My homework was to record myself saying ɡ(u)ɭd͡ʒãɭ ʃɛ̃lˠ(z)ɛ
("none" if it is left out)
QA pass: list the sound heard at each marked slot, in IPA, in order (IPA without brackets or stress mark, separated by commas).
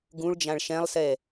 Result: ũ, s